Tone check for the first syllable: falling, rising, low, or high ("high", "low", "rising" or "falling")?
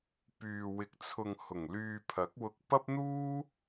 low